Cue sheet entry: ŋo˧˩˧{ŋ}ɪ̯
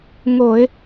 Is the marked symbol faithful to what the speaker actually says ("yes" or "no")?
no